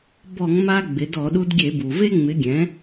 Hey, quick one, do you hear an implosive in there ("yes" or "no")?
yes